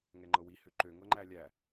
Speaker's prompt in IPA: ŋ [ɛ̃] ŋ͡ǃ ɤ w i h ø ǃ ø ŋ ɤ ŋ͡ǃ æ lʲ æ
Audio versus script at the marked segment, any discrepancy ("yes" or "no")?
yes